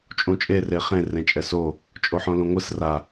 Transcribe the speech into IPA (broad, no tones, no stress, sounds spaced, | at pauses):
t͡ʃʼ ũ t͡ʃʼ e r e χ ẽ r ẽ t͡ʃʼ ɛ s o | t͡ʃʼ o ħ õ l ũ ŋʷ ɯ s r a